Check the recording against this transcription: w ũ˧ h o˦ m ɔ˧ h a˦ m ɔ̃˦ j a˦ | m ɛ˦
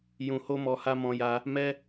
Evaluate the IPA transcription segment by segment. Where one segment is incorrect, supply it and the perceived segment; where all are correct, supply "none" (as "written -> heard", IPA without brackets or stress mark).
w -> j